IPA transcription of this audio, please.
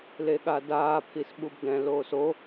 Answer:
l e ɠ a d aː pʰ i s ɓ u b d ɛ̃ l oː s o

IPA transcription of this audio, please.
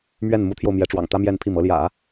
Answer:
m ɥ ɛ˥˩ n m u˧˥ t̪ʰ j o˧ ʊ̯ m j ɛ˧˥ ʈ͡ʂ w ɑ̰˨˩ ŋ t̪ ä˥ m j ɛ˥˧ n pʰ i˥˩ m ɤ˧˥ l j ä̰˨˩˦

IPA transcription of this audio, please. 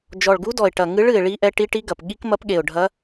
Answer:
d͡ʒ ɔ˨˩ ɭ ɡ u˧˥ d ɔ˨˩ ɪ̯ ʈ ɐ˨˩ ŋ ɨ˧˥ ɭ ɨ˨˩ ɪ̯ ɭ i˧˥ ʔ ɛ˧˥ ʈ i˧˥ ʈ i˧˥ ɡ ɐ˨˩ p ɠ i˧˥ k m ɐ˧˥ p ɠ e˨˩ ʊ̯ ɖʱ ɐ˧˥

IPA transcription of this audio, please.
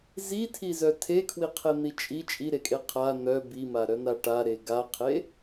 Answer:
z i tʰ i z œ tʰ e kʰ w i qʰ e n̪ i t͡ʃʼ i t͡ʃʼ i ɾ e kʼ e qʰ a n̪ œ b i m a ɾ œ n a ʈ a ɾ e ɡ a qʰ e

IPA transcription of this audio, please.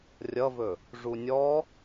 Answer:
rʲ ʌ v ɵ | ʐ u nʲ ɔ

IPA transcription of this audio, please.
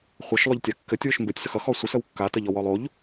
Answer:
χʷ ɘ ʃ lˠ ʏ ʎ tʲ a kː ɘ tʲ w ʏ ʃ m b ɘ tʲ s ə x ʌ x ɔ sʷ ə s ə w kː a t ə ʎ ɔ w ɔ lˠ o ʎ

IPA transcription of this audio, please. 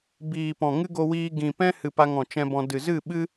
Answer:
b iː˨ p ɔ̃˨ ŋ ɨ˦ ɡ o˧ w iː˧ ɡ ĩ˨ p ɛ̃˦ h ɨ˨ p a˧ ŋ ɔ̃˨ t͡ʃ ɛ̃˧ b ɔ̃˧ d ɨ˨ z ɨ˦˨ ɓ ɨ˦

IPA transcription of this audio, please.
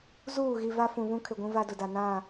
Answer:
z uː˦˨ ɣ i˨ v a˦ f ũ˨ β ũ˦ kʰ ɪ˨ ɡʷ ũ˦ v a˦ d ʊ˨ d a˨ n ã˦˨

